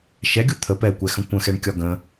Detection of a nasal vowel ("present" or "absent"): present